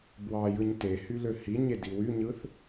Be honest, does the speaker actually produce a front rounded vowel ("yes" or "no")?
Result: yes